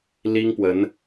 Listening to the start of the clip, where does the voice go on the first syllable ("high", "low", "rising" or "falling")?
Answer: high